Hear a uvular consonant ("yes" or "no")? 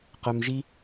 yes